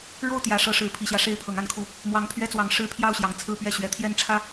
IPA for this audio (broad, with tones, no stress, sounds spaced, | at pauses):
ɻ o˥˨ ʊ̯ t̪ j ä˨˦ ʂ ɤ˨˦ ʂ ɻ̩˨˦ pʰ i˨˩ ɕ j ä˦ ʂ e˦ ɪ̯ pʰ ɤ˨˦ ŋ a˨˦ n kʰ u˨˦ | m w ɑ˨˦ ŋ pʰ ɥ ɛ˦ t͡s w ɑ˨˦ ŋ ʂ ɻ̩˦ pʰ j ɑ˥˨ ʊ̯ ɕ j ɑ˨˩ ŋ t͡sʰ ɹ̩˥˨ p ɥ ɛ˥˨ ɕ ɥ ɛ˨˦ t̪ʰ j ɛ˥˨ n ʈ͡ʂʰ ä˥˨